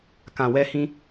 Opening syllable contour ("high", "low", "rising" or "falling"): low